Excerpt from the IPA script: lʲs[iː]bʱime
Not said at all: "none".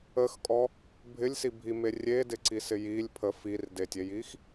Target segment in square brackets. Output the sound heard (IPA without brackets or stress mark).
i